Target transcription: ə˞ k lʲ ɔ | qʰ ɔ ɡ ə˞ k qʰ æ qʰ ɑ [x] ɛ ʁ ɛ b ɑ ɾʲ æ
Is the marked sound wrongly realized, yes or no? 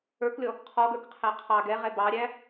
yes